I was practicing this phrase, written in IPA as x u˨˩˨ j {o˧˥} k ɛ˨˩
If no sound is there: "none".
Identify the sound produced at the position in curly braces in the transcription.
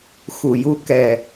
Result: u˧˥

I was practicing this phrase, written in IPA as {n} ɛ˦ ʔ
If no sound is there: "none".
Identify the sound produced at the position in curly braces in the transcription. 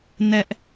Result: n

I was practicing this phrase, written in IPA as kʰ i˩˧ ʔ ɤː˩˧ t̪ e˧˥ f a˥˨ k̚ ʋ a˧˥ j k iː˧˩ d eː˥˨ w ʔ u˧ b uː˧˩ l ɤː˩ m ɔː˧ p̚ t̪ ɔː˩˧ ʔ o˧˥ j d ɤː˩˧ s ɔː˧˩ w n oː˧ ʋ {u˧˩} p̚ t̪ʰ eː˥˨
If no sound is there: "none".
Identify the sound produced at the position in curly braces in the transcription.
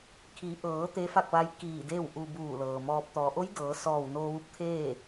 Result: u˧˥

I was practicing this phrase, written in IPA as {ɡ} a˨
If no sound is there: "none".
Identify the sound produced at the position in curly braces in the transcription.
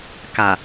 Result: k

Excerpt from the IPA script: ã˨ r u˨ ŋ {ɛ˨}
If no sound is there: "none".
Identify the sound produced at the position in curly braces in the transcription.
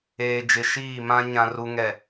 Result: ɛ˨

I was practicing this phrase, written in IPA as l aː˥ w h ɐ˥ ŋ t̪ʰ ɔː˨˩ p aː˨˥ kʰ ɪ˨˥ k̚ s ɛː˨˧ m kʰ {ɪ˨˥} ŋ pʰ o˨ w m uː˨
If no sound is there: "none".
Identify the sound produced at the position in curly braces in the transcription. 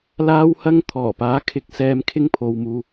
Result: ɪ˥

